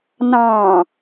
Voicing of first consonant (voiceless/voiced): voiced